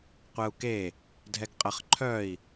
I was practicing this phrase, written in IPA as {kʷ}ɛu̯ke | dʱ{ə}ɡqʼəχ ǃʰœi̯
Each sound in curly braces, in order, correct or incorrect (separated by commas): incorrect, incorrect